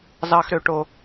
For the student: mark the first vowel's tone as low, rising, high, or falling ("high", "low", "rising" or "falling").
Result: high